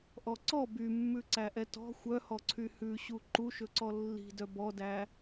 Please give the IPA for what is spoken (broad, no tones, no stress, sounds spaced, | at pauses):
ʔ ɔ ǀ ɔ b y mː ʉ ǀ æ ʔ ɛ t ɔ̤ xʷ œ h ɔ ǀʰ y h ʉ ɕ u ǃ u ʃ ɵ ǀ ɔ lː i̤ d œ b ɔ d æ